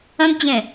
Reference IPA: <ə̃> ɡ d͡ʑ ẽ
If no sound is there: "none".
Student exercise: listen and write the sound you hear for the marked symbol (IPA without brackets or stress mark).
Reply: ə̃